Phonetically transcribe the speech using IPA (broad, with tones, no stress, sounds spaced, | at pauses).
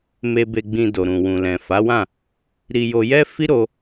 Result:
m e˧ b e˧ ɡ͡b ĩ˧ d o˨ ɾ ũ˨ w ũ˨ l ɛ̃˨ f a˨˦ w ã˦˨ | ɾ i˧ j o˧ j ɛ˦ f i˦ ɾ o˧